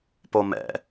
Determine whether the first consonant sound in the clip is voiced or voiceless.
voiceless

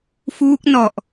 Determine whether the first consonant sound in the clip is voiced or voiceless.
voiceless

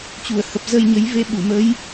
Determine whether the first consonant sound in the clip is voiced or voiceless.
voiceless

